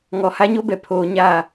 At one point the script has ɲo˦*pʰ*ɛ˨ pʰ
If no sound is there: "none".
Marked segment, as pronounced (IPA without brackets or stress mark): b